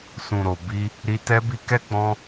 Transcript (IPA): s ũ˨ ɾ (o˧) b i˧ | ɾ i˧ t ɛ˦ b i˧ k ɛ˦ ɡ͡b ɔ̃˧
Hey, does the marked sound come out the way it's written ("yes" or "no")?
no